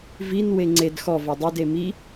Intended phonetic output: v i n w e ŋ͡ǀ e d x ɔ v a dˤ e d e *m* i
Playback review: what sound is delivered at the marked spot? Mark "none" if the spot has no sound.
m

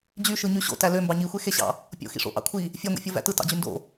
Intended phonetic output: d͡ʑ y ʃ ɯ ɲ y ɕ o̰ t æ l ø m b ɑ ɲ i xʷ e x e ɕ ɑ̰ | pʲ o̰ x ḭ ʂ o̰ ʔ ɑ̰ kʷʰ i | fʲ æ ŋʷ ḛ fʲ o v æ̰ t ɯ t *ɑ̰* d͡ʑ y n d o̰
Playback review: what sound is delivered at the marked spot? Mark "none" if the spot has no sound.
ɑ̰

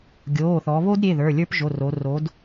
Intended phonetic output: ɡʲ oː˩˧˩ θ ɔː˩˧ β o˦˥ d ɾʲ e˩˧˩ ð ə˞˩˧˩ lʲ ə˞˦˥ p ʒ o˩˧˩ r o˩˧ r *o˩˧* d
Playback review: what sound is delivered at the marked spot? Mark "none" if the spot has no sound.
o˩˧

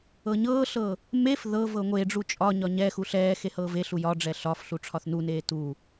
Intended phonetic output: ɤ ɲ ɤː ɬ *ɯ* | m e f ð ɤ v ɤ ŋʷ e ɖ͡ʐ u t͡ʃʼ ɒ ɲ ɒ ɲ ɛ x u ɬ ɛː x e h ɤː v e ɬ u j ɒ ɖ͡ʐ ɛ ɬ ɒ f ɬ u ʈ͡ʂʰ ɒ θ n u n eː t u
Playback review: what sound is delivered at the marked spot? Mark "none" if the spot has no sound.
ɤ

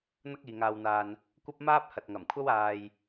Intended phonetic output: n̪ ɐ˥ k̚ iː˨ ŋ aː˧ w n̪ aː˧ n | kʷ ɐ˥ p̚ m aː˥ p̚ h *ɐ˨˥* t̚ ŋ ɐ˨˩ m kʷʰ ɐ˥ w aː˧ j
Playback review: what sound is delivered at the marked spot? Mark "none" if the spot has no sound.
ɐ˨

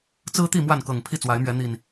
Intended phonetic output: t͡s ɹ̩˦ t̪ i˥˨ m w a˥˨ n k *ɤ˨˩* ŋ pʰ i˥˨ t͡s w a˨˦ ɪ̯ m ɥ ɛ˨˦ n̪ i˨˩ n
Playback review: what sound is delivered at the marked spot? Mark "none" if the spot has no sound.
ɤ˨˩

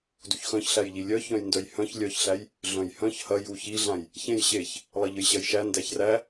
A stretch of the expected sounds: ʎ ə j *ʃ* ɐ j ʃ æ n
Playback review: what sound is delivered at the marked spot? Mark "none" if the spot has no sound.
ɕ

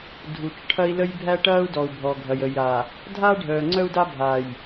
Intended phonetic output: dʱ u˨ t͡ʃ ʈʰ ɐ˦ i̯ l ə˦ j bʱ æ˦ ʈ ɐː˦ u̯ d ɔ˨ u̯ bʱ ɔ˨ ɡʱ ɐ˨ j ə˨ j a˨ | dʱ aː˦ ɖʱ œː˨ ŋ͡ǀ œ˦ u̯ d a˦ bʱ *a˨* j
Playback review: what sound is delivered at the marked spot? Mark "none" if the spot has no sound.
aː˨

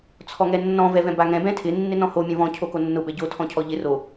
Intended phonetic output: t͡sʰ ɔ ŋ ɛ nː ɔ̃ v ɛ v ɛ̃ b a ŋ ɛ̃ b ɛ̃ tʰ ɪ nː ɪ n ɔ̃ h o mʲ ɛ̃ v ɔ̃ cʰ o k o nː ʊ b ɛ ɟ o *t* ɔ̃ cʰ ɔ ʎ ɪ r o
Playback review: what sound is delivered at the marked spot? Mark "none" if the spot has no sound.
tʰ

